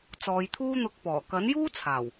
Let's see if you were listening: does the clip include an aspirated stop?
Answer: yes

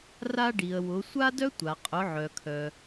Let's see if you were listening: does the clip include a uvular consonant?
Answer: yes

